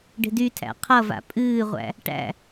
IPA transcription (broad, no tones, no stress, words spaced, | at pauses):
ɖe̤dytʰæ̰ qʰʌva̰ pʼɨːʁʷæ̰ | ʈæ̰